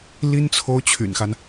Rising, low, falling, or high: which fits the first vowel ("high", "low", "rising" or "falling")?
high